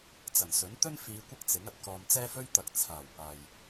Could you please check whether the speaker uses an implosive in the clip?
no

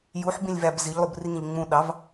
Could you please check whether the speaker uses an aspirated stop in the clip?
no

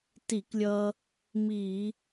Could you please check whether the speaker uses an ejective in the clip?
no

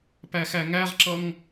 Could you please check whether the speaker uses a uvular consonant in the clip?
yes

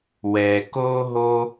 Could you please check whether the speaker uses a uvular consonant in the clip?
no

